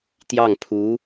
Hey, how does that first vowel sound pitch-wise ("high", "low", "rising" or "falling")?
falling